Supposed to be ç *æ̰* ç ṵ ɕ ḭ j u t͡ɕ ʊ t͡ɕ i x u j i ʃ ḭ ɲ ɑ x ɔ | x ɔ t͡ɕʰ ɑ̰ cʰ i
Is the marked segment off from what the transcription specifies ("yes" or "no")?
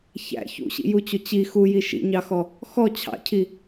no